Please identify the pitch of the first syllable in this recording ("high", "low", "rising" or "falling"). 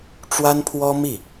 high